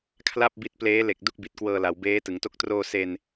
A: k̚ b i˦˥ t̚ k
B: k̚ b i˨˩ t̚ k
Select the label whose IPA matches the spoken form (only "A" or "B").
B